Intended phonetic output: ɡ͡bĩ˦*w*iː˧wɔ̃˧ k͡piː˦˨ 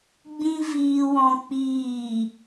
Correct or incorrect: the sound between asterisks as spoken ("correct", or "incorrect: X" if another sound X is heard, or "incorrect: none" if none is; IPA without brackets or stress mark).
incorrect: v